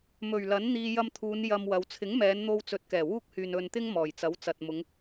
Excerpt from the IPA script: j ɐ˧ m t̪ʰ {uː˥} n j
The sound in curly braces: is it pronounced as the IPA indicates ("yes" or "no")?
no